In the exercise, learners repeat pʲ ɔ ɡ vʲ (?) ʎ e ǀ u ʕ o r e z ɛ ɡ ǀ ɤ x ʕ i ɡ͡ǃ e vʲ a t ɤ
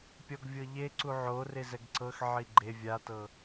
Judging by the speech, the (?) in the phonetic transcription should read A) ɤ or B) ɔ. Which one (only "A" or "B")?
A